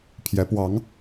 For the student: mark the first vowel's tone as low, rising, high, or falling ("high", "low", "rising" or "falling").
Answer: rising